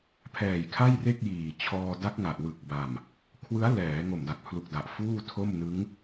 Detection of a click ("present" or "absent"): absent